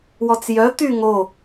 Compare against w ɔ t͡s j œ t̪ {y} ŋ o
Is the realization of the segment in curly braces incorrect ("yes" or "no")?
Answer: no